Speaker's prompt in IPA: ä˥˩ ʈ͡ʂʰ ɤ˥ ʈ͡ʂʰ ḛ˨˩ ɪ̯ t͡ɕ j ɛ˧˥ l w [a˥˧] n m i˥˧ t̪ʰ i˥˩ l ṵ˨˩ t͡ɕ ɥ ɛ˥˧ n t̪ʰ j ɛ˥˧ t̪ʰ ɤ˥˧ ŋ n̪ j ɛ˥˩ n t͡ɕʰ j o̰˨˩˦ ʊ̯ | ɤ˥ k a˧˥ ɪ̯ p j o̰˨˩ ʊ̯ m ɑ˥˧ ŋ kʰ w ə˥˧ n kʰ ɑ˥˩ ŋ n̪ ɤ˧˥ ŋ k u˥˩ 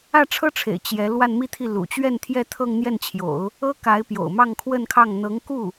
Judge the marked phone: correct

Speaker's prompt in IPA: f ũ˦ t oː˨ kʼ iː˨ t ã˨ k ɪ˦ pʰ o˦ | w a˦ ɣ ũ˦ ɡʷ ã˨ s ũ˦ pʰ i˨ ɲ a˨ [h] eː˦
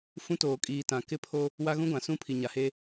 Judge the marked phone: correct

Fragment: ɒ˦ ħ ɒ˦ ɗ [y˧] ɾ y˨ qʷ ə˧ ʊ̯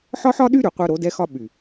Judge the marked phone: incorrect: y˦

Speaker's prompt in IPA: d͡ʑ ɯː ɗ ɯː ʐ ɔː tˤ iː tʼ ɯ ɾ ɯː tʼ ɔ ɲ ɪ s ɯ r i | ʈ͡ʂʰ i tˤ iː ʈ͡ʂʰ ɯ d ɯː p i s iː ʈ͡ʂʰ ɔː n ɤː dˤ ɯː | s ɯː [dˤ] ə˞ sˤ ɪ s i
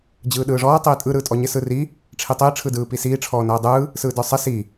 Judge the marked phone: incorrect: d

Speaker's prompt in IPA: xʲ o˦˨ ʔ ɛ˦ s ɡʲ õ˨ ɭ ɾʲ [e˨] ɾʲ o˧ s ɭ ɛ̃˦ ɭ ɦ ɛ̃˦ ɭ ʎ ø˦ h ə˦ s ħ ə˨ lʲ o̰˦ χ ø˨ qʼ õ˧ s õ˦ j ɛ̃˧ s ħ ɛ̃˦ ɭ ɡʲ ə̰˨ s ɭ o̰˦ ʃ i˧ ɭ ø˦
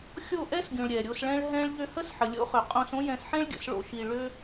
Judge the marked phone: incorrect: ɛ˨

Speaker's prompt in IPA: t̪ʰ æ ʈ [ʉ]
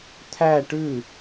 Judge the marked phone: correct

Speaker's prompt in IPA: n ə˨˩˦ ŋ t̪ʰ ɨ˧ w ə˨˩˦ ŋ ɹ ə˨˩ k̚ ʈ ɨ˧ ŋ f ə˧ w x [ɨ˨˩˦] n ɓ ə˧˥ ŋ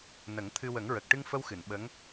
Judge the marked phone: incorrect: ɨ˨˩˨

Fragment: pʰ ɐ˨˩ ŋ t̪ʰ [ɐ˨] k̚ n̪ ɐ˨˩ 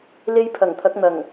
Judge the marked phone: incorrect: ɐ˨˥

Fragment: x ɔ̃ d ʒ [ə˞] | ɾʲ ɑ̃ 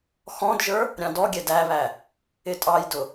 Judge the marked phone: correct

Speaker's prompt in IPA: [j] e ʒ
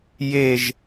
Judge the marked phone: correct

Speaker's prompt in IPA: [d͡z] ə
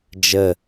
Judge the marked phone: incorrect: d͡ʒ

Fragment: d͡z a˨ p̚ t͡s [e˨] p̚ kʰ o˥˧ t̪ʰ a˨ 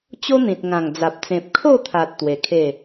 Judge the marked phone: incorrect: ẽ˨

